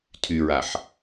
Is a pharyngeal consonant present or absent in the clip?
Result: present